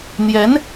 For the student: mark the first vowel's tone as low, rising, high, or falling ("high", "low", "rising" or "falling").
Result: rising